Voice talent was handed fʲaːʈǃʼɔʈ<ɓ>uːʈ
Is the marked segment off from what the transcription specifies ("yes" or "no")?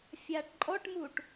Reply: yes